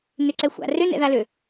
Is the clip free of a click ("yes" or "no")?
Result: no